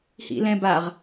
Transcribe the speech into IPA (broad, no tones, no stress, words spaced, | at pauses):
hḭlɛ̃baʁ